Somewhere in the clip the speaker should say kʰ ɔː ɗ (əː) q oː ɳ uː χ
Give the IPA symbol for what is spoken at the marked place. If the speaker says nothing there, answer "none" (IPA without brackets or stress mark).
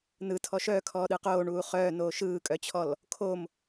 ɯː